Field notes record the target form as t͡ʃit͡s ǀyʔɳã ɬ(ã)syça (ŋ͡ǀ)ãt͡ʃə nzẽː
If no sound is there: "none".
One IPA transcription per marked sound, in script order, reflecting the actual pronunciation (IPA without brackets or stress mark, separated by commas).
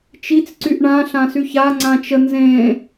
ã, ŋ͡ǀ